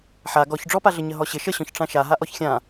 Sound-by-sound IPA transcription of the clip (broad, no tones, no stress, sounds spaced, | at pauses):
ħ a ɡ ɔ ç ɖ͡ʐ ɔ p a ɮ ə ɲ ə ɦ ɔ ɕ ɪ ʃ ə ɕ ɔ̃ ç ʈ͡ʂ ã ʃ a ɦ a ʔ ɔ ç xʲ ã